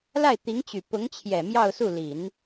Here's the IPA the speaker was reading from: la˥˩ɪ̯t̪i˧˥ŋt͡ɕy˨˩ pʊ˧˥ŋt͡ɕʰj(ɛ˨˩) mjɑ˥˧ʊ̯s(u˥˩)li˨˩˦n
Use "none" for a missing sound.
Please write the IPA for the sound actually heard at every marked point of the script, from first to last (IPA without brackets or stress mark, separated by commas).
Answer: ɛ˨˩, u˥˩